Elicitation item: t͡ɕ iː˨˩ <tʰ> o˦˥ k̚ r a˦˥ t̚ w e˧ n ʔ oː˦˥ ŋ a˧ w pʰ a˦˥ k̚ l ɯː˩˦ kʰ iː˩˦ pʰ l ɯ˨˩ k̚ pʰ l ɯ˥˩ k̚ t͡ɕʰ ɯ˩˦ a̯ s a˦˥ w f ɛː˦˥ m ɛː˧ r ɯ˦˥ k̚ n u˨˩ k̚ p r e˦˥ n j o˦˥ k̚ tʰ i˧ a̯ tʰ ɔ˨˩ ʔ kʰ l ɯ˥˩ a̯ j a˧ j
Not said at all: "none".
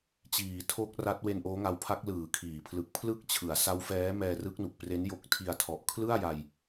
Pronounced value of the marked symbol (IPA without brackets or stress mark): tʰ